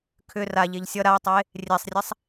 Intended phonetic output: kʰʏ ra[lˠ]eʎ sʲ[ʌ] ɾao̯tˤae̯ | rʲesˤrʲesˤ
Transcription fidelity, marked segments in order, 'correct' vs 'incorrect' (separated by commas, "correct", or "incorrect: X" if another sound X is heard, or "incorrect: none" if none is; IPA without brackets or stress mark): incorrect: ʎ, correct